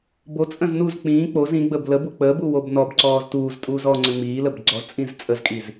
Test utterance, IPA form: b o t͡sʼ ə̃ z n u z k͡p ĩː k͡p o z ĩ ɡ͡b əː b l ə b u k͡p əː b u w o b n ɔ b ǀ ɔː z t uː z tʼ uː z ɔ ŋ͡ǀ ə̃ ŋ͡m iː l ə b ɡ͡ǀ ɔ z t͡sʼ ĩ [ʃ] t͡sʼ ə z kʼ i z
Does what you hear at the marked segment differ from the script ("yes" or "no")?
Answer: yes